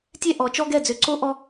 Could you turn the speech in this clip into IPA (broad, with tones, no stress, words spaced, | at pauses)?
tʲɛ˦ʔɔ˨˦t͡ʃɔ˦ ɡɛ˦˨d͡zø˧ǀo˦ ʔɔ˦